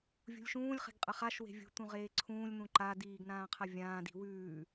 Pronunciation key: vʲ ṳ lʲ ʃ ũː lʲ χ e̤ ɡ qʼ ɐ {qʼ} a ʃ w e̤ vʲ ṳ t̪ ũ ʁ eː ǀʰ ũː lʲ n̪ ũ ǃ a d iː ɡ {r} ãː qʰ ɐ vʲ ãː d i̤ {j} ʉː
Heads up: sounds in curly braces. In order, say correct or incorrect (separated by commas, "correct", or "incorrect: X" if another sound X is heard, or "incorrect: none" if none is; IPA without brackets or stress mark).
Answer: incorrect: χ, incorrect: n, incorrect: w